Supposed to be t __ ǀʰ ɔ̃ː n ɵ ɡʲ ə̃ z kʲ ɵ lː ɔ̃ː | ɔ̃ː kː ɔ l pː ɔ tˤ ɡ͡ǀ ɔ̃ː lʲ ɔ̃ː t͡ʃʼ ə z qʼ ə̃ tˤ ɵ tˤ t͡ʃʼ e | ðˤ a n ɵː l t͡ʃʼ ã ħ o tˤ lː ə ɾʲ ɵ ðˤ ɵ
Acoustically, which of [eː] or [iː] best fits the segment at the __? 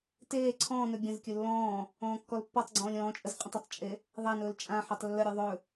eː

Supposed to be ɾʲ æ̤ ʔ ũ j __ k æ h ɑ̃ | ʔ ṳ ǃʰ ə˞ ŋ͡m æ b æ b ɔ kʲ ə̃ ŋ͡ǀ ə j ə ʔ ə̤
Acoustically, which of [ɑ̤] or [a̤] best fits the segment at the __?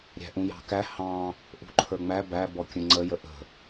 ɑ̤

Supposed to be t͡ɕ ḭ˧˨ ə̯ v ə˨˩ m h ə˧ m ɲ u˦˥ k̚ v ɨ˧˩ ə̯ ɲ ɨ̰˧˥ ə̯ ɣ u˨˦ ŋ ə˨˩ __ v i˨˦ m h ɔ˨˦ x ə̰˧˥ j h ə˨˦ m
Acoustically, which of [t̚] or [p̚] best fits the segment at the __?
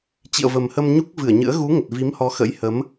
t̚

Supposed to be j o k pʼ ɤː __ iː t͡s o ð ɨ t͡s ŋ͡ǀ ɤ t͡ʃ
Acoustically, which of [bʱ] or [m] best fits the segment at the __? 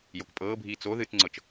bʱ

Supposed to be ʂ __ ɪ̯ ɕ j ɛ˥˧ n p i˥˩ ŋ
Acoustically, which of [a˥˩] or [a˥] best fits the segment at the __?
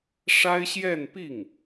a˥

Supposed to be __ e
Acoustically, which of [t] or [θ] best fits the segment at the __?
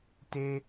t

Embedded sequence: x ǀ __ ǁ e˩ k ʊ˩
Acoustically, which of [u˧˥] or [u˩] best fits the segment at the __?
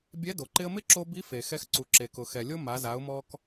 u˩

